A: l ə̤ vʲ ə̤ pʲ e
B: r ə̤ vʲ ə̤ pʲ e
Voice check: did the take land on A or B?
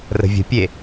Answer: B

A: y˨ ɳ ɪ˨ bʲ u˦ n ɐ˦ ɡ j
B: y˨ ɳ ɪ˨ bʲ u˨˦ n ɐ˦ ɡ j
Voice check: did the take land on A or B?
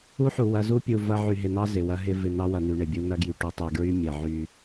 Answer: A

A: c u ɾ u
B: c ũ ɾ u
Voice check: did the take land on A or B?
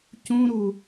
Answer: B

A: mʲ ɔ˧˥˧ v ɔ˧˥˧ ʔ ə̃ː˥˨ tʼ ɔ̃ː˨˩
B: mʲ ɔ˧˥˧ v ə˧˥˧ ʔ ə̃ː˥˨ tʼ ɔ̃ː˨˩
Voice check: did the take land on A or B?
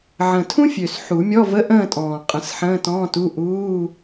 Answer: B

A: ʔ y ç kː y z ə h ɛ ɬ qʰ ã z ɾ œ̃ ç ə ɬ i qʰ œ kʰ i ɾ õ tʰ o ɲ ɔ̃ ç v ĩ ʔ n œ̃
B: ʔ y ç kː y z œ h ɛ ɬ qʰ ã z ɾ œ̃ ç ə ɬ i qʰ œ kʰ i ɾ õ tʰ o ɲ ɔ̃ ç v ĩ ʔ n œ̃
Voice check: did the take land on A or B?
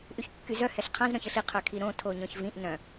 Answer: B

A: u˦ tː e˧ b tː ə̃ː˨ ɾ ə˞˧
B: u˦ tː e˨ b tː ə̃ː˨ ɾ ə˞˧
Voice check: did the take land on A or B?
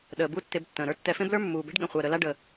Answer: A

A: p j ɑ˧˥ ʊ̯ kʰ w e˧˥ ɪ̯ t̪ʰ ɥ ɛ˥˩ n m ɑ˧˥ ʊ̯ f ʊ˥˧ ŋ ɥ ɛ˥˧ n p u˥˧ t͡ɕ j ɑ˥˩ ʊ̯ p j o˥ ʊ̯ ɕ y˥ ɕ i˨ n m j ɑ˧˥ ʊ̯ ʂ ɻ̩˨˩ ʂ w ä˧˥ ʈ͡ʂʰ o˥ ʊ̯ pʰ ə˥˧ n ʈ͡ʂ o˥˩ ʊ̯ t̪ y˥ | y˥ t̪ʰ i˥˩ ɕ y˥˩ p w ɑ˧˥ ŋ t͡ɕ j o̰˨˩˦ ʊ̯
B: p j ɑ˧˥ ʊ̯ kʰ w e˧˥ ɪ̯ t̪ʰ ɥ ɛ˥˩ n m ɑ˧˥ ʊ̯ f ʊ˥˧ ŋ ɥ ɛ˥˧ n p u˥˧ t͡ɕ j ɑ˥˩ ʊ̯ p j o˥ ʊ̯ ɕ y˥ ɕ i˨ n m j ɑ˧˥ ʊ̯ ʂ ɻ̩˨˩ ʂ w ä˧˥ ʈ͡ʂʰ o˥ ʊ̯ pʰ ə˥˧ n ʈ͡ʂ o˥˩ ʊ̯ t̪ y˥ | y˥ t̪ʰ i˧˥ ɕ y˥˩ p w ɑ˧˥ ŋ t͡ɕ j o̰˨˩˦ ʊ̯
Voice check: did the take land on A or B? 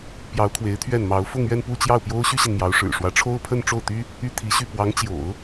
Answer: B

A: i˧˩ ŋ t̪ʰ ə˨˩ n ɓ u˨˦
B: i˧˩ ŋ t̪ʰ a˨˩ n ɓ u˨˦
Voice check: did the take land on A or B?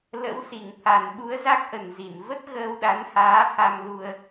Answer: B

